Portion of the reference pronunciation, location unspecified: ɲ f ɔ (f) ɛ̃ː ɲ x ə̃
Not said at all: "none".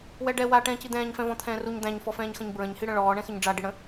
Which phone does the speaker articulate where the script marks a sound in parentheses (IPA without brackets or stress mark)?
f